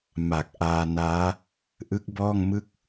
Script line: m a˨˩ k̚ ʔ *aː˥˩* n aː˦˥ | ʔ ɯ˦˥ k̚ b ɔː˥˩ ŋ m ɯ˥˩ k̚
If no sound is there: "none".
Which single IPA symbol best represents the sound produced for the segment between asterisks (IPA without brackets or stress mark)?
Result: aː˧